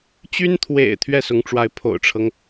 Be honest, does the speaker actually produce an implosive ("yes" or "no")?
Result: no